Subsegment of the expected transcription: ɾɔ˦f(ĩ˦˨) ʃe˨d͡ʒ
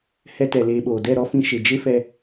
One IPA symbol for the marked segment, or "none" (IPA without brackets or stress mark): ĩ˧